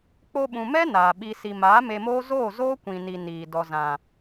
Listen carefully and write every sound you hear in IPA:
k͡po˧ɓũ˨mɛ˦ naː˨ɓi˧ si˨maː˨˦ me˧moː˦ zoː˦˨zoː˦kʷĩ˨ni˨ niː˨dɔ˧ zã˨

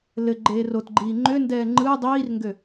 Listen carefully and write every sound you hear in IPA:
lɘ ɡ͡ǃeːrotɡ͡ǃiː ŋ͡ǃøndɛː ŋ͡ǃɯ dˤiːrŋɡø

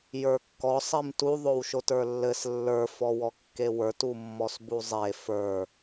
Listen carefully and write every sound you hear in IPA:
jə˞kːɔ sˤimtu ðˤowʃotə˞lːɘs lːə˞ fɔwɔkːewə˞t umːɔsbuzˤe fə˞

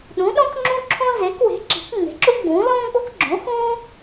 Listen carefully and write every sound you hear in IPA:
ɗũ˩˥ɗõ˥kŋ͡ǁũ˥ǁʰõ˥ ze˩˥kwe̤˩˥ǁi̤˩˥k ŋ͡me̤˩˥ǁu˥ɡ͡bũː˩˥ lõː˥ɡ͡bo˥kɡ͡ǁõ˩˥xũː˥

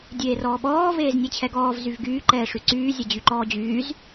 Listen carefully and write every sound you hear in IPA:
dʲeːrɔːɓɔː veːznʲet͡ɕʰɛɡɔːv zyvɡyː ǃɛːʂyǀyː zʲɛd͡ʑyǃɔːd͡ʑyːz

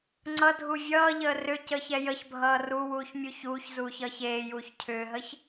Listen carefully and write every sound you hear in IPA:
ŋ͡ǀʌdʱu vʲʌːʎəː rʏ cəːçɛjəçbʱʌː ruwuːç mʲuçuːçzuːç ʌːçeːjuːç cʰʏːɦəç

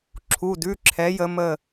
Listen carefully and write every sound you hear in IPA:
ǁʰu˩˧˩dʉ˩˧˩ǁʰɛ˩˧ jə˩˧mə˧˩

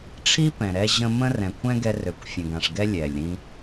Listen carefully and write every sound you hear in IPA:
ʈ͡ʂʰi˦ pɛ̃˨ɾɛ˦ʑə̃˦ mə̃˦rɛ̃˨kʷʰɛ̃˦ ɡɛ˦ rø˨kʷfʲə̃˨ɡã˨ʂɡɛ˦ lʲɛ˨lʲɾĩ˦

